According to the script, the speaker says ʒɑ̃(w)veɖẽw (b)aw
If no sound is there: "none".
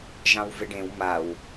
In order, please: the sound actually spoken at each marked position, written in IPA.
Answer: w, m

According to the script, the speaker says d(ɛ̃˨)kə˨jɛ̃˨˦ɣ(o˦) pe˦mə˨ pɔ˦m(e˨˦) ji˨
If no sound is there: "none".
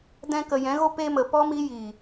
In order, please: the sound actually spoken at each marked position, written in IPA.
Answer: ɛ̃˧, o˦, i˨˦

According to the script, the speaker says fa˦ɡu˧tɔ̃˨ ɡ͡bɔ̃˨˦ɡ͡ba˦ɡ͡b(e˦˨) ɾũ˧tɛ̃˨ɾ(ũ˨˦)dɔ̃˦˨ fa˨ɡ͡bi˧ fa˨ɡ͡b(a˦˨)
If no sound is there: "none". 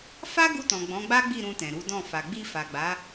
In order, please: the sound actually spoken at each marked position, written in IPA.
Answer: i˦˨, u˨˦, a˨˦

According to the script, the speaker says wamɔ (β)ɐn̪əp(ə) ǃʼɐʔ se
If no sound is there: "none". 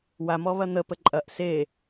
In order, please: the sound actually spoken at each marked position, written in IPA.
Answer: β, ə

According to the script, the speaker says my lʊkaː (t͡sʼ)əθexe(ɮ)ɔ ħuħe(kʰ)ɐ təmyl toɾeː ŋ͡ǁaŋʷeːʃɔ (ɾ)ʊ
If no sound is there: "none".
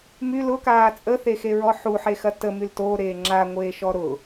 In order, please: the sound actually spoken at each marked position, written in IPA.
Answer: t͡sʼ, ɹ, x, ɾ

